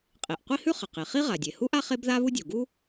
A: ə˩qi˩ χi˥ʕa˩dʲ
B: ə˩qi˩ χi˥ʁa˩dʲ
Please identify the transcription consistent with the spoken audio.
B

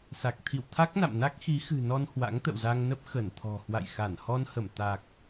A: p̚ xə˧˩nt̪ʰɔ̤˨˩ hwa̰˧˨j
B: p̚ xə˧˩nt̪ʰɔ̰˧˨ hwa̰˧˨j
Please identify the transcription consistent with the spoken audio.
A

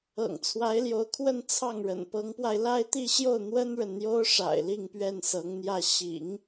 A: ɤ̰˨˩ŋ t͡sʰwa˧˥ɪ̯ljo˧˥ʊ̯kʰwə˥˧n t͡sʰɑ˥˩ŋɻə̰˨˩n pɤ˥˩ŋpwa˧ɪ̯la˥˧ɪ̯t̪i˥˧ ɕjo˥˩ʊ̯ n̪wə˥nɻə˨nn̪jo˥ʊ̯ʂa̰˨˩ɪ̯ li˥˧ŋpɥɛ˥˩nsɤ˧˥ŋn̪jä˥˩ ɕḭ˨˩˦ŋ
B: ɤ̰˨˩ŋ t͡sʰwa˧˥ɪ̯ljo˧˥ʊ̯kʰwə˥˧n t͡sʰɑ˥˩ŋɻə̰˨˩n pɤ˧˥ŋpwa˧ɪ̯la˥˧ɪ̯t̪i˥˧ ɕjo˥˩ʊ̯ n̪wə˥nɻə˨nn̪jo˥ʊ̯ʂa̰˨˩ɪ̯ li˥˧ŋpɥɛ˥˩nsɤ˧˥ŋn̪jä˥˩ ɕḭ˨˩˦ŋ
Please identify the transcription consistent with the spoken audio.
B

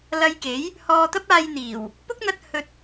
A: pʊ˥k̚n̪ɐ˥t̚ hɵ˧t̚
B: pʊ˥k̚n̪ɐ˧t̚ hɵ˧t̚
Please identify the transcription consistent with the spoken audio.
B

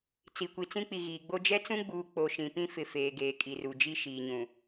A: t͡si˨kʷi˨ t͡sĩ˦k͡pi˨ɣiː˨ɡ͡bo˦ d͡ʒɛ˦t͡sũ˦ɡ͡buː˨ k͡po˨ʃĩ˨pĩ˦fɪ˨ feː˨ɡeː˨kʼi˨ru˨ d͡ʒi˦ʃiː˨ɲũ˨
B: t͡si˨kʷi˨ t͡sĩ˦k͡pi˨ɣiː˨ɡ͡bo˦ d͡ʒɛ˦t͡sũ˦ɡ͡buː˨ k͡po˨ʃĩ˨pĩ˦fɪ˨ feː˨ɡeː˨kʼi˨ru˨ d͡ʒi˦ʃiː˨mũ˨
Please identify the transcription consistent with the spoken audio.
A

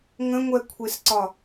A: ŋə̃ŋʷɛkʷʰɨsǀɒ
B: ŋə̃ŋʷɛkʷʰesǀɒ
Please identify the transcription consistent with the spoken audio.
B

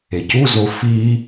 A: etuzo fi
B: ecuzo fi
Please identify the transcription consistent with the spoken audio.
B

